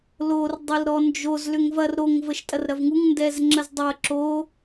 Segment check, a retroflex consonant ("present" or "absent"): absent